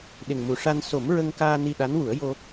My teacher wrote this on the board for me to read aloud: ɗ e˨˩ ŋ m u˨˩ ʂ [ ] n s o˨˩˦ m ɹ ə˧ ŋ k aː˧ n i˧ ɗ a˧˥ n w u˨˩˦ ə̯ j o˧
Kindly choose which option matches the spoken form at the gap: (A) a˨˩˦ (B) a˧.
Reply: B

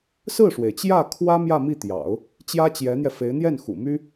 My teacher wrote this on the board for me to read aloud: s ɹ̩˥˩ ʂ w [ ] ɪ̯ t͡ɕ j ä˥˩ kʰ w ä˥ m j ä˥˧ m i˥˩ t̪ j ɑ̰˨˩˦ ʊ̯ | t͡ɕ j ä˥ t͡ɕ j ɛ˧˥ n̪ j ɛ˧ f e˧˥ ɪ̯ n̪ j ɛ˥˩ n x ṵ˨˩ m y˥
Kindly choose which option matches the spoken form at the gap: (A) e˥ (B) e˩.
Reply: B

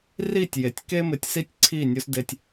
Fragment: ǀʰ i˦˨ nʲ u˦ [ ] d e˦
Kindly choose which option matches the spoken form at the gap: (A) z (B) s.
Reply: B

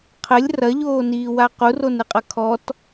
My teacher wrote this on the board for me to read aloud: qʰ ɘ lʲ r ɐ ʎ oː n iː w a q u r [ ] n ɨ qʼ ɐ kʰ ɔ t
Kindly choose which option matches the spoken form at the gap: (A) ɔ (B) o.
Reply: B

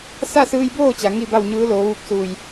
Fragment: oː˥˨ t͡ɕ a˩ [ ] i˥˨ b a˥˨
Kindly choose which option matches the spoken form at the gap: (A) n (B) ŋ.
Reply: B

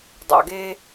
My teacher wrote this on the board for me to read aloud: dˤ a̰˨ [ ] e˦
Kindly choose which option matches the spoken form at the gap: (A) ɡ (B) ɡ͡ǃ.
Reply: A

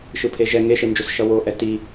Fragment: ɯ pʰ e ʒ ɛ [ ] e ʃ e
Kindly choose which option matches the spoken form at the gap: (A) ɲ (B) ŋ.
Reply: B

